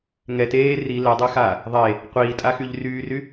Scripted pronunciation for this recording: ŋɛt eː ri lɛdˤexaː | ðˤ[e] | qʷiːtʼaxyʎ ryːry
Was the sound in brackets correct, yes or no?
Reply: yes